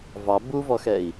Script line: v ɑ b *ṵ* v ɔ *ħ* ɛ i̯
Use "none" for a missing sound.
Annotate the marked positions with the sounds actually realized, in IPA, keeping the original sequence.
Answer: u, x

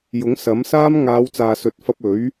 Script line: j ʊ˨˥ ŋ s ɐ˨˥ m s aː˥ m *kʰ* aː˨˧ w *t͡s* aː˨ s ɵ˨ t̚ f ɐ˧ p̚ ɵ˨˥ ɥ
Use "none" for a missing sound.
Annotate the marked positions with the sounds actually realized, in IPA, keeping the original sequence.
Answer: ŋ, t͡s

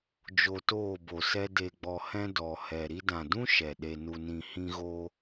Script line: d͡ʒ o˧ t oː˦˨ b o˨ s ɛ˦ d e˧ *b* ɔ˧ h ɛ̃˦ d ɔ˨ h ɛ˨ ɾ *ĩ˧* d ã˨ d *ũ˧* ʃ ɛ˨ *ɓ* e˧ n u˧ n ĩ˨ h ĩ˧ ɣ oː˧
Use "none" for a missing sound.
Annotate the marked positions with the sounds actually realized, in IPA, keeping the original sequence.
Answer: ɡ͡b, i˧, ũ˦, ɗ

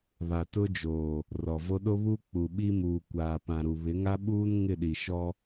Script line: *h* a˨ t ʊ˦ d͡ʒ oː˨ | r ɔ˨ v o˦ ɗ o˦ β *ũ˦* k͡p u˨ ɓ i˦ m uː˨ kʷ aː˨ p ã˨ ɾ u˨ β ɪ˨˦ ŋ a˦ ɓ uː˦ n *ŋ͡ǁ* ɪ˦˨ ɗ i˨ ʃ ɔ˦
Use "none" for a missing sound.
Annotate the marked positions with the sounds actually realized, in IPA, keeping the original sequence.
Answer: β, u˦, ŋ

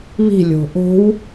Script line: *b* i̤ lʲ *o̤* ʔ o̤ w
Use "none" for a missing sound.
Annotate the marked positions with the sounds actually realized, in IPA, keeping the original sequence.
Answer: β, o̤

